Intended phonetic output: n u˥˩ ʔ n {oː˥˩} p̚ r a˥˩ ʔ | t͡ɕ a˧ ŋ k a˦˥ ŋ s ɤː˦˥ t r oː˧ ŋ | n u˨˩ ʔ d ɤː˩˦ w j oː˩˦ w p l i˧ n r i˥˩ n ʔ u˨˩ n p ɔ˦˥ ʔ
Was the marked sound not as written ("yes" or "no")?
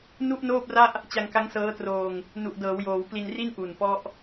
no